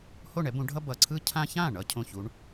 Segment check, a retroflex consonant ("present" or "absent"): present